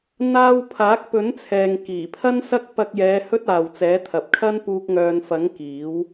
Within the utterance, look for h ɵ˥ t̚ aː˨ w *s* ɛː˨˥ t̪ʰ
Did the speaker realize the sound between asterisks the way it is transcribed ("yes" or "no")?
no